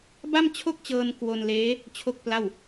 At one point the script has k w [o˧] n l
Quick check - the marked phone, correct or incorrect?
correct